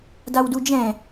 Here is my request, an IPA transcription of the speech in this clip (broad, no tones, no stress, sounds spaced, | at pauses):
d a w d u d͡ʒ ɛ̃